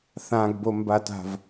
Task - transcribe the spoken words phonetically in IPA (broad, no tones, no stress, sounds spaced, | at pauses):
θ ã ɡ b o m b a t a̤ v